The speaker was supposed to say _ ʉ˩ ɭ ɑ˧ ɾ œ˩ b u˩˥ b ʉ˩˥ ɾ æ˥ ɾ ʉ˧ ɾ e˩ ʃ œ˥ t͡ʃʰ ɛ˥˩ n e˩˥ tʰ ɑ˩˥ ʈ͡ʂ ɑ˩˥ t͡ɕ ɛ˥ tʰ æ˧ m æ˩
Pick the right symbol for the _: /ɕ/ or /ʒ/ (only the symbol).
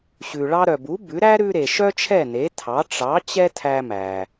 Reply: ɕ